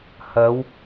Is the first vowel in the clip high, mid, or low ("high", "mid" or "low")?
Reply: low